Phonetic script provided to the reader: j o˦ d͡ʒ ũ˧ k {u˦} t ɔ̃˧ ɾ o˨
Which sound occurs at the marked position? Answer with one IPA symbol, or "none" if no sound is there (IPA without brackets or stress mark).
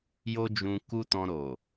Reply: u˦